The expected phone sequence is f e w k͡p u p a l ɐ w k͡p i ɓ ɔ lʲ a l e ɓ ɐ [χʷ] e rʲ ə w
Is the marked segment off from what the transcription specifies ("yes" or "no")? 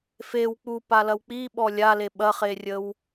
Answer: yes